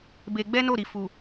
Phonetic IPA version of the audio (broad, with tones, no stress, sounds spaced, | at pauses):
b e˧ ɡ͡b ɛ˦ n o˦˨ ɾ i˨ f u˨